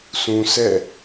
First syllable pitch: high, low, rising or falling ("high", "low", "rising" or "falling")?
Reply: low